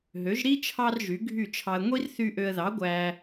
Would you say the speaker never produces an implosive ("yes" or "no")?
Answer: yes